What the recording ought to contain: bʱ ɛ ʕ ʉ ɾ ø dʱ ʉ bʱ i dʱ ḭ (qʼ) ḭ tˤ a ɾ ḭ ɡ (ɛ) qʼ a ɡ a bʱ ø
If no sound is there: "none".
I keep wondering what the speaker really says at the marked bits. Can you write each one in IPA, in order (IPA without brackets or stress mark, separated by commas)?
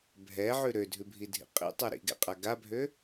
qʼ, ɛ̰